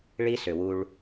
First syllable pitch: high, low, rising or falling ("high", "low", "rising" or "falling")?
high